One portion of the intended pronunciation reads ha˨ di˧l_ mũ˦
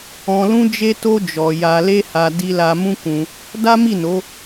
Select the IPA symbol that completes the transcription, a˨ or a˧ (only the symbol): a˧